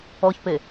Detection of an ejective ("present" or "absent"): absent